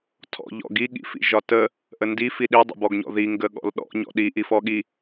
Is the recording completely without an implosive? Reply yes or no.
no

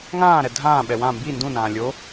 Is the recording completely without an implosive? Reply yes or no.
no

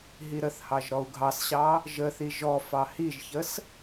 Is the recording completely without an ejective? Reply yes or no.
yes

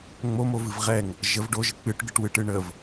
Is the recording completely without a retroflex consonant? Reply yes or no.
no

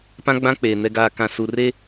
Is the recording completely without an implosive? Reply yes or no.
yes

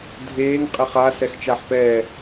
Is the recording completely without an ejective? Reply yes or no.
no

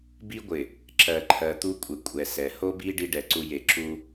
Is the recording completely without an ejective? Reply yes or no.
no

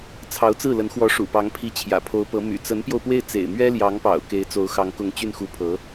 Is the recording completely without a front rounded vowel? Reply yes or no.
no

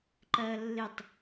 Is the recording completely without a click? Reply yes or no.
no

